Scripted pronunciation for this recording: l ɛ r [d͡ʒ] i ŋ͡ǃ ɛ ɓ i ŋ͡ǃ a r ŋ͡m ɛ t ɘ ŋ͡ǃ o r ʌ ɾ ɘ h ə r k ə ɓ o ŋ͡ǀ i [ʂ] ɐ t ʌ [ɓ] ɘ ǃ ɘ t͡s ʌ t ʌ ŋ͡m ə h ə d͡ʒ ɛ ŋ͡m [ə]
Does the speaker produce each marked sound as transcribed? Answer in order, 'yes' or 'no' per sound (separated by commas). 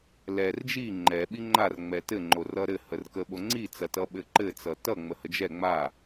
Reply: yes, no, yes, no